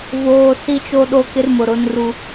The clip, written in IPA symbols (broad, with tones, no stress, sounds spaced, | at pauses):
v oː˨ s i˦ t͡ʃ o˦ ɗ o˦ k ɪ˦ r m ʊ˨ ɾ ʊ˦ n r u˦